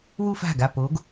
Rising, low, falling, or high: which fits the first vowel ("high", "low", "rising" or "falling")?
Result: falling